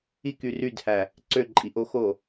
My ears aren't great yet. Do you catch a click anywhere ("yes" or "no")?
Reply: yes